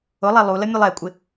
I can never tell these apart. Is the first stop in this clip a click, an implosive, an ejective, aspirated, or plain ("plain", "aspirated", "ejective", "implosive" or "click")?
ejective